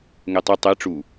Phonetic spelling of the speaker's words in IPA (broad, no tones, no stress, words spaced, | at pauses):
ŋɛtˤɐ tˤe ʈ͡ʂu